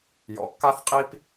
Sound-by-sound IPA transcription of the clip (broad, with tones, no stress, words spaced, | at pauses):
jɔ̰˨kːa˦θqʼi˦p